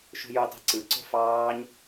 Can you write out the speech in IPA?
ʃ ṳ j u tˤ i̤ ǀ ɯ ǀ o̤ f ɑː ɲ

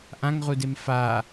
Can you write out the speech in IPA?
ʔ ã ŋ ʁ u d e m f a

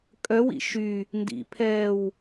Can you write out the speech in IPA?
kʼ œ w ḭ ʃ y | n d ḭ pʰ ɛː w

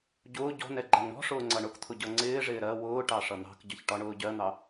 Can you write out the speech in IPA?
ɟ ʊː ɟ ɔ̤ n ɛ ɡ͡ǃ æ ŋ ɳ ɔ̤ ʂ ʊː ŋ͡ǀ ʌ ɳ ʊ k t̪ʰ ʊ ɟ ʌ ŋ͡ǀ ɪː ʐ ɪː ɾ ɜ w ʊː ʈ ɑ ʂ ʌ n̪ ɑ̤ k ɟ ʌ ç ʈ ɒ ɳ ʊː ɟ ɜ n̪ ɑ

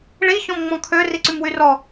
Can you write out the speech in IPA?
ɭ i ç ɔ̃ m ŋ͡m ɔ̃ kʰ ø r i ǀ y m w y r ɔ

